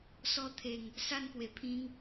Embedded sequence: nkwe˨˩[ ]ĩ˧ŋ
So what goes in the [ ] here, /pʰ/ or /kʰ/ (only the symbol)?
pʰ